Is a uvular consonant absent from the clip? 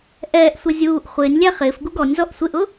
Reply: no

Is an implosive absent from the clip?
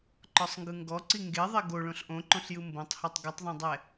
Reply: yes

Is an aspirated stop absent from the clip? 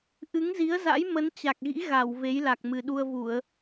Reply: yes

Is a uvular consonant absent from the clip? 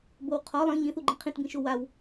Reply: no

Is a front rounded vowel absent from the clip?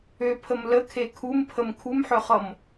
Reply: no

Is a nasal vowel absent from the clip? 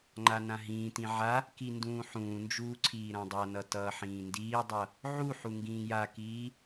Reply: no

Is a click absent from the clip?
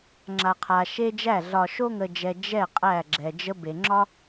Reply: no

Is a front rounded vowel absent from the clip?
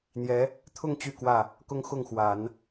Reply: no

